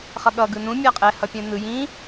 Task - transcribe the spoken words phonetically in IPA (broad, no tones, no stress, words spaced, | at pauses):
χʌɠʌ ɡɯnũ mʲaqʼɛ hʌpʲɛ̃nɯ jĩ